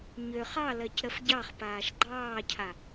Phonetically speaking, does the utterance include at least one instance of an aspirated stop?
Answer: yes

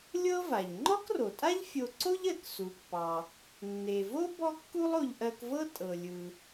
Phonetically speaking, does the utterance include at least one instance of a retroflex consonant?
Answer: no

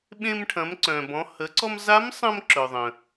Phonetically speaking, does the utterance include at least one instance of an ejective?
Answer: no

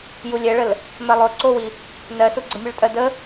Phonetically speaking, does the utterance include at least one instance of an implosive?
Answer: no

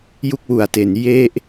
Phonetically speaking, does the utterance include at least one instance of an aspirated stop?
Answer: no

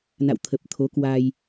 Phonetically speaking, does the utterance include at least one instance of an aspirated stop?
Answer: yes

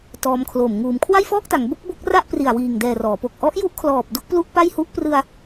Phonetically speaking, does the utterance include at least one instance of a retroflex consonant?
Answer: no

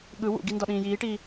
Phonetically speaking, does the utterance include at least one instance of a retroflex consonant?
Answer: yes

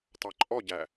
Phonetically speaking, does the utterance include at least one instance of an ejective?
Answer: yes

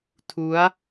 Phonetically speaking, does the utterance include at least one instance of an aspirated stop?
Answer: yes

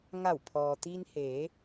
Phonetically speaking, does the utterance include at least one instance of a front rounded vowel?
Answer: no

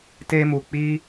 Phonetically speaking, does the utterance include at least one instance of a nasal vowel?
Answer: no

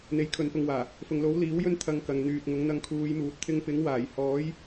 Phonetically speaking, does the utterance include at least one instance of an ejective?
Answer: no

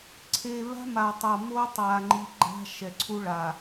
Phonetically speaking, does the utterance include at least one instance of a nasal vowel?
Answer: no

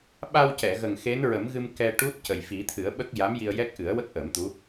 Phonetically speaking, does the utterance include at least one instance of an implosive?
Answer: yes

